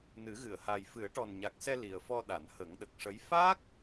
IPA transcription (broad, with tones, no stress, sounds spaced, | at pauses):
n ɨ˨˩˦ ɣ ɨ˨˩˨ ə̯ h a˨˩ j f ɨ˨˩˦ ə̯ ʈ ɔ˨˩ n ɲ a˨˩ k̚ s ɛ˧ l i˨˩ ə̯ f ɔ˧ ɗ a˨˩˨ n h ə˨˩˦ ŋ ɗ ə˨˩ k̚ ʂ ə˧˥ j f a˦˥ k̚